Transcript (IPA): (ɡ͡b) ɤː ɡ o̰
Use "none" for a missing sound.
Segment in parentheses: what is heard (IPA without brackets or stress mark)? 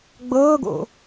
ɡ͡b